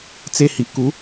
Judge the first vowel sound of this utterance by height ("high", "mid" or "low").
mid